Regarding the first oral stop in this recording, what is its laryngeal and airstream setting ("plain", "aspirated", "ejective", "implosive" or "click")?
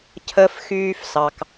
aspirated